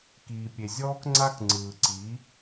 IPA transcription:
k iː˨ pʲ e˨ zʲ ɔː˦ k ŋ͡ǀ a˦ k ŋ͡ǀ ɯː˨ ǀ i˨˦

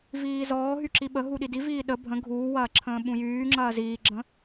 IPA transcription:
v iː z ɔː ɦ y ǁ i ɓ ə ɦ u ɗ i d i v iː ɗ ə bʱ ə̃ ɡʱ uː w ɐː ǁʰ ə̃ː ɓ ũ j yː ŋ͡ǁ ɐː z iː ɡ͡ǁ ə̃

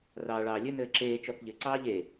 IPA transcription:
r ɑː ɭ ɑː lʲ ɘ n ɘː ǁ eː t͡ʃ ɔ θ ʎ ɘ ǀ ɑː ʎ e

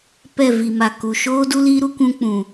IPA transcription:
p ɛ˦˨ v i˨ m a˨ k u˨ ʃ oː˦ d u˦ l i˦ ɾ u˦ kʷ ũ˦ k͡p ũ˨

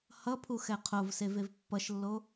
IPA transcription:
h ʌ pʰ u x ɛ qʰ o v s e v e v pː ʌ ʃ lː o

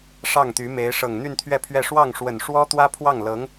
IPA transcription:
ʂ ɑ˥˩ ŋ t̪ y˧˥ m e˧˥ ɪ̯ ʂ ɤ˨˩ ŋ n̪ y˥˧ n t̪ʰ ɥ ɛ˥˧ pʰ ɥ ɛ˥˧ ʂ w ɑ˥˩ ŋ ʂ w ə˨˩ n ʂ w ɔ˥ t̪ w ä˥ pʰ w ɑ˥˩ ŋ l ɤ˧˥ ŋ

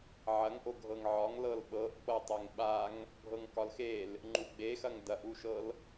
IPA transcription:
ʕ ɐ ŋ ʔ o ɡʱ ɤ ŋ ʕ ɒ ŋ l ɤ l ɓ ɤ ʔ k͡p ɤ tˤ e ŋ ɓ a ŋ | bʱ ɤ ŋ k ɒ l x e l | ŋ͡ǃ u ɡ͡b e x ɐ ŋ d ɐ ʔ u ʃ ɤ l

